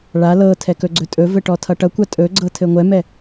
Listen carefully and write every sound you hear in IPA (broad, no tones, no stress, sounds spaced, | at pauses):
ɭ a l ɤ tʰ ɛ k ɵ ɡ͡ǀ ɵ tʼ ɵ v ɘ ʈ ɔ tʰ ʌ ʈ ʌ kʷ a tʼ ɵ ɡ͡ǀ ɤ tʰ ɘ ŋʷ ɛ m ɛ